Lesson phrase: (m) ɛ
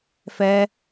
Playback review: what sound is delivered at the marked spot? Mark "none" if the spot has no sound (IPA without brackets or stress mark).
f